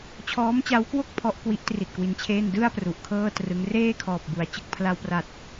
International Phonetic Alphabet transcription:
t͡ɕʰɔː˦˥mt͡ɕa˦˥wkwo˥˩k̚ pʰɔ˦˥ʔkwi˦˥ʔtri˨˩t̚ kwi˧nt͡ɕʰeː˥˩n dɯ˥˩a̯ pru˨˩ʔkʰɤː˥˩trɯ˦˥ŋ reː˥˩kʰɔː˨˩p̚bu˩˦a̯ t͡ɕɯ˨˩k̚pʰla˧wpra˨˩t̚

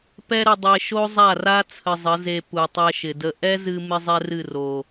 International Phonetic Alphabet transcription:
pɛ˦ɾə˧ dˤe˧ʃo˦zˤa˦˨ra˦ t͡sʰə˧zˤə˨˦ze˧ pu˨tˤɛ˧ʃɪ˨də˧ ʔɛ˦zɨ˧ mɪ˦zˤɛ˦rɨ˦˨ ro˨

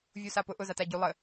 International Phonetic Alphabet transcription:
vʲusapʊʔʊ zataɟu lˠə

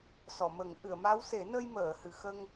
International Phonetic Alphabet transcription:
sɔ˨˩˨mə˨˩˦ŋ ʔɨ˨˩˨ə̯ma˧˥wse˨˩˦ nə˧jməː˨˩˨ hɨ˨˩˨xə˧ŋ

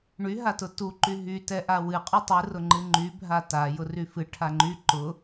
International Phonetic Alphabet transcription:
ɳyɦatʊ tuǃy ɦytɛ ʔawɨ qʼytˤɨ rʊŋ͡ǃɨŋ͡ǃy bʱata jʊryfɨ ʈʰaŋ͡ǃy ǃʊ

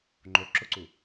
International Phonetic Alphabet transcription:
ŋ͡ǃo ǁʊǀu

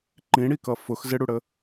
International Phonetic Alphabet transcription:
ǃĩɽikʌ fʊx zɪɽuɽə

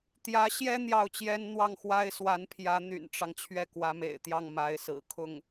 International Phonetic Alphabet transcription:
t̪jä˧˥ɕjɛ˥ n̪jɑ˥˩ʊ̯t͡ɕjɛ˥n n̪wɑ˥˩ŋxwa˥ɪ̯swa˧˥npʰjä˧˥ n̪y̰˨˩nʈ͡ʂɑ˦ŋ t͡ɕʰɥɛ˥˩kwä˧˥mḛ˨˩ɪ̯t̪jɑ˥˩ŋ ma˧˥ɪ̯sɹ̩˨˩ kʰʊ˥˩ŋ

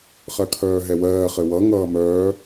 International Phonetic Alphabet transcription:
χɜkʰœːɦɛwɜː χɘwʌ ŋʌːmœː

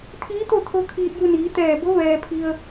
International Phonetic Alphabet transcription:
t̪ʰiː˧˥t̪o˥˨ t̪ʰo˧˥kʰiː˧t̚ju˧niː˩˧ t̪ɛː˧˩bo˧˥ ʋɛː˩pʰi˩ə̯

